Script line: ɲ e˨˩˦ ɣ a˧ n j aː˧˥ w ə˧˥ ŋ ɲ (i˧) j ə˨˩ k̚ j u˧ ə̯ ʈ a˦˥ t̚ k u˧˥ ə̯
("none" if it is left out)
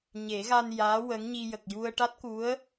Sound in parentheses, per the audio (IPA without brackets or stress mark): i˧